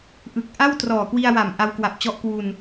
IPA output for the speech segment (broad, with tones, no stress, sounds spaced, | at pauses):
ʔ ɯ˨˩ k̚ ʔ a˥˩ w t r ɔː˨˩ k w i˧ a̯ w a˨˩ m ʔ a˧ w k w a˨˩ p̚ t͡ɕ ɔ˦˥ ʔ k w u˧ n